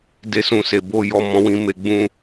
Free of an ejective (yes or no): yes